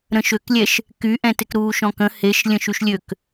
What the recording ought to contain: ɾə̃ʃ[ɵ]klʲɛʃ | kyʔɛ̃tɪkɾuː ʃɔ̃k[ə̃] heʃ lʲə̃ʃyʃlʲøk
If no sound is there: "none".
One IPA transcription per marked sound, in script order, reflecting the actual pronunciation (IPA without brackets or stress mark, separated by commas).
ø, ə̃